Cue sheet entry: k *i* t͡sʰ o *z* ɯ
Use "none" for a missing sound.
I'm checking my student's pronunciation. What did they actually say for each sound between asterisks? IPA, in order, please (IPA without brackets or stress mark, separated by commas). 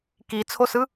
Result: i, s